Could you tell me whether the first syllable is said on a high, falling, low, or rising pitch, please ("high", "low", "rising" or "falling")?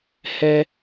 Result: high